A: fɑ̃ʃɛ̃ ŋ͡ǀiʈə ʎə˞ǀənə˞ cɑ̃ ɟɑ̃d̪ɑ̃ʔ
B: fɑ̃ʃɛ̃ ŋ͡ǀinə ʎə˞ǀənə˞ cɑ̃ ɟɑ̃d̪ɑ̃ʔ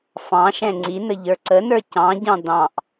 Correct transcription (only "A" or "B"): B